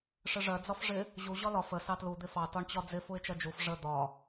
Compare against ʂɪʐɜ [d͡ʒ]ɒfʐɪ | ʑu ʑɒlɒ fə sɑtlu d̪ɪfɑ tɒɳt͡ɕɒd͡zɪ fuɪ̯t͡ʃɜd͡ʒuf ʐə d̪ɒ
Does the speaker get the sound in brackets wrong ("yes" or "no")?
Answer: yes